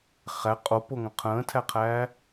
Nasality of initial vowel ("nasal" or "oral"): oral